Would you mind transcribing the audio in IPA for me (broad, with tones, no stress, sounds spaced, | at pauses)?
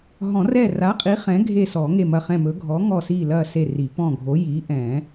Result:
ɦ ɔ̃˨˩˦ r ɛ˦˨ r a˨˥ qʼ i˨˥ χ ɛ̃˨˥ ɡʱ e˦˨ s ɔ˨˩˦ ŋ e˦˨ m ɐ˦˨ χ ɛ̃˦˨ m ɵ˨˥ ɡʱ ɔ˨˥ ŋ ɔ˦˨ s i˦˨ l ɐ˦˨ s e˦˨ r i˨˩˦ p ɔ̃˦˨ ɡʱ o˨˥ j i˨˥ ʔ ɛ̃˨˩˦